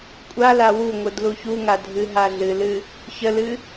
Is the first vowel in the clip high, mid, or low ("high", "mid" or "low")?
low